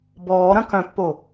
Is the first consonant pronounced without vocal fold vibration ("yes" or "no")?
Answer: no